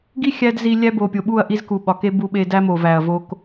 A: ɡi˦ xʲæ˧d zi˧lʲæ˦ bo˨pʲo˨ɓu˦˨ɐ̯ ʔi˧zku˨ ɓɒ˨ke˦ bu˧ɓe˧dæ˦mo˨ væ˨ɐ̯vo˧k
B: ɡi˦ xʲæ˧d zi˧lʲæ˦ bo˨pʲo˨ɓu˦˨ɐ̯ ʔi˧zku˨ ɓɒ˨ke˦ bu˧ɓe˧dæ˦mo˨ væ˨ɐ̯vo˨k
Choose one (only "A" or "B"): A